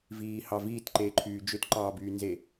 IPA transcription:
v iː h ɑ v iː t ǃ eː ǃʰ yː d͡ʒ ø t ǃ ɑː b yː n z e

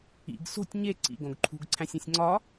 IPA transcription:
ḭ ɡ s o̤ tʲ ɲ e ǀ ḭ ɡ õ ɡ ǃʰ ṳ ɡ ǀʰ æ̃ sʲ ẽ sʲ ŋ͡ǀ ɒ

